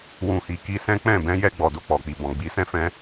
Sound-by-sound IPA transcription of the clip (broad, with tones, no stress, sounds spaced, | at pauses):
w ũ˧ h i˧ k i˧ s ɛ̃˦ k͡p ɛ̃˦˨ b ɛ̃˧ j ɛ˧ ɡ͡b ɔ˨ d o˧ k͡p ɔ˨ k͡p i˨ b ɔ̃˨ ɡ͡b i˨˦ s ɛ̃˦ f ɛ̃˦